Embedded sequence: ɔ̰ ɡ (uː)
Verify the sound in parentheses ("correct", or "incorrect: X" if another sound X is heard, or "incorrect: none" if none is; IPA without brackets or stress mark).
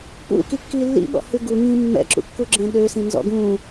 incorrect: ũː